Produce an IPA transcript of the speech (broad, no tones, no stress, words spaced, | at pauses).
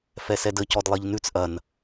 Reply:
fɛsɛdə cɔdlˠiʎnʉt͡s ʔɐn